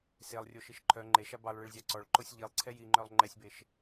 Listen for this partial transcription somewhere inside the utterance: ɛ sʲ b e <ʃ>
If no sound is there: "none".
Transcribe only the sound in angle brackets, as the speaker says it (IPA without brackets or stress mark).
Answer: ʃ